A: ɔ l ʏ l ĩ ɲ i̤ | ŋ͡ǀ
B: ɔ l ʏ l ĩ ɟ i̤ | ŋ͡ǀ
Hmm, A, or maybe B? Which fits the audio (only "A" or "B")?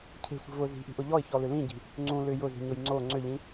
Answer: B